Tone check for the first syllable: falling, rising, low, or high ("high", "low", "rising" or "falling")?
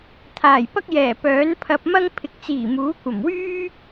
low